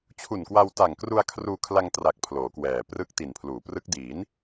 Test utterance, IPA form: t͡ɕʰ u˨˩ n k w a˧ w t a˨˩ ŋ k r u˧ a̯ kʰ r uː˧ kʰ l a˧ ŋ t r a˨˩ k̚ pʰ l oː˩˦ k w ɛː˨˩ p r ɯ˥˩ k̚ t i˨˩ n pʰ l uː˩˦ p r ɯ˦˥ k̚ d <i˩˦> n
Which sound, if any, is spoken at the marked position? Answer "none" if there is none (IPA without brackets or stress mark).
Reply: i˩˦